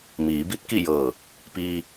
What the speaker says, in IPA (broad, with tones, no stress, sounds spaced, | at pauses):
m iː˩˧ b i˧˥ t̚ k i˥˨ j ɤː˧˩ | p iː˧